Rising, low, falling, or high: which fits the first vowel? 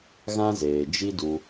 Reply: high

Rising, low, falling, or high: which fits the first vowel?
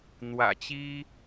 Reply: low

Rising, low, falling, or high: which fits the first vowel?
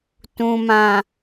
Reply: low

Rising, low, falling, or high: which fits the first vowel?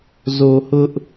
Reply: low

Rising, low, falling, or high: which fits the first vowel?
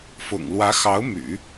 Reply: low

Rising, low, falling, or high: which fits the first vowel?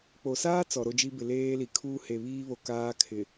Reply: low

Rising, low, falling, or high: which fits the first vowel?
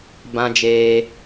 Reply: high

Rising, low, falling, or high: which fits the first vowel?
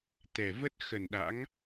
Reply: low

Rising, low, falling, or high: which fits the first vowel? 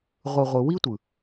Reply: low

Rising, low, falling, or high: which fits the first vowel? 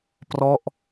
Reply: falling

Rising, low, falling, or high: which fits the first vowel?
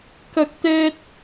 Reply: high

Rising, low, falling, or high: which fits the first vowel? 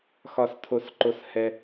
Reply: low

